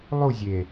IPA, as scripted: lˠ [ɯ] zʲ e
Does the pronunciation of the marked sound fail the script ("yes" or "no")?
yes